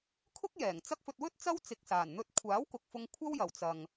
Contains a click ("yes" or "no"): no